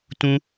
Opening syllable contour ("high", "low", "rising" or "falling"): high